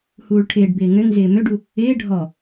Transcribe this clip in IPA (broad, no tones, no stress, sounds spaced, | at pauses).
h uː ɭ ʈʰ ɪː ɖ b ɪː ŋ ø ŋ z ɪː m ø ɖ u | ɪː ɖʱ ɔ